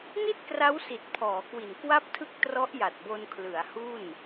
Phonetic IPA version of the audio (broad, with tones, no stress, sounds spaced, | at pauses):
n i˥˩ t̚ k r a˦˥ w s i˨˩ t̚ pʰ ɔː˩˦ k w i˨˩ n k w a˥˩ p̚ tʰ ɯ˥˩ k̚ t r ɔ˦˥ ʔ j a˨˩ t̚ b o˧ n kʰ l ɯ˩˦ a̯ h u˥˩ n